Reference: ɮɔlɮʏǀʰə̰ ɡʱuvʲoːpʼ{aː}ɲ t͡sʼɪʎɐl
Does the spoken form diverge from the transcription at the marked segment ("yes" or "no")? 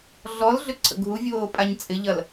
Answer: yes